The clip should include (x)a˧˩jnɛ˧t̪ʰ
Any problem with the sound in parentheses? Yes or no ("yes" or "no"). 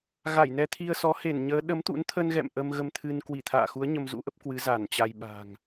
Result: yes